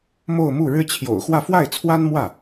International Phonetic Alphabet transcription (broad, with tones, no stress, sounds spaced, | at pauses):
m o˥˧ ʊ̯ m u˥˩ ɻ ɻ̩˥ t͡ɕʰ j o̰˨˩ ʊ̯ x w ä˥˧ f w a˥˩ ɪ̯ t͡sʰ w a˥ n m w ä˥˩